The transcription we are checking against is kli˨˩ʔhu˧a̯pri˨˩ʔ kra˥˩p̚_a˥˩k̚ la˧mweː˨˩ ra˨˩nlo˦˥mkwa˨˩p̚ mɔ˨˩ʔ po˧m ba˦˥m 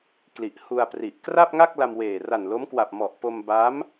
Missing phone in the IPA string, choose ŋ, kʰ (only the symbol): ŋ